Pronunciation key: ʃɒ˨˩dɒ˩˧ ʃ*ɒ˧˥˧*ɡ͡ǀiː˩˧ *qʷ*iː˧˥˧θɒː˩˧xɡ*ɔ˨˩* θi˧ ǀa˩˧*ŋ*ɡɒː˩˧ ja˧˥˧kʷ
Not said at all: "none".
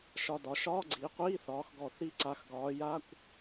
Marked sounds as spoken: ɒː˧˥˧, qʷ, ɔ˨˩, x

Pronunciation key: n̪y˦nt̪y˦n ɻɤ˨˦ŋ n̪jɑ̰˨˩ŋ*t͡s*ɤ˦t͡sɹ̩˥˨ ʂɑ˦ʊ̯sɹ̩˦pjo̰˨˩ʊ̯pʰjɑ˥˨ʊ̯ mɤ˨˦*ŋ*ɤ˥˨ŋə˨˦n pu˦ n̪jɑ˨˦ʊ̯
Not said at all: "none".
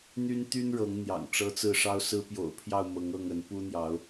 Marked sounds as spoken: ʈ͡ʂ, ŋ

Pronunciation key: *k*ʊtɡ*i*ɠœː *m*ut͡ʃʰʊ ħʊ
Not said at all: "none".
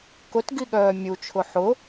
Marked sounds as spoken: k, i, mʲ

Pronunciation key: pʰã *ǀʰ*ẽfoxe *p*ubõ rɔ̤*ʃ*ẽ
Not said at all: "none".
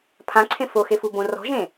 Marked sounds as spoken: ǀʰ, f, ʒ

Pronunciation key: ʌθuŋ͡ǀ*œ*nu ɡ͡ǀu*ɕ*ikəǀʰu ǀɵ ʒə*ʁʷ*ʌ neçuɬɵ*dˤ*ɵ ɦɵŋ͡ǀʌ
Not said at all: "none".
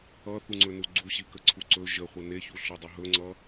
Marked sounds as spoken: ɵ, ɕ, χʷ, dˤ

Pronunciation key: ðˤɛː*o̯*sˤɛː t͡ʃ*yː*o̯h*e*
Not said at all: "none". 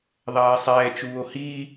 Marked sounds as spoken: e̯, uː, i

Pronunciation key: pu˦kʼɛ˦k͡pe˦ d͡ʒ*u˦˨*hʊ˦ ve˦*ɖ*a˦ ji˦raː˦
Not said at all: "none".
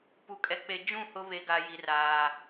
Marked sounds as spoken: ũ˦˨, ɡ

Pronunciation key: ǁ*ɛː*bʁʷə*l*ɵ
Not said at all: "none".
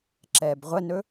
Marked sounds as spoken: ɛː, n

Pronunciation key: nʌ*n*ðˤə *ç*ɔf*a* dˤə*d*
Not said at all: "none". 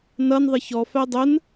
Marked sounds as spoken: n, ç, æ, n

